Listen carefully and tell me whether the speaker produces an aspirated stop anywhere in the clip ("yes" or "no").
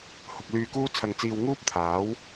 yes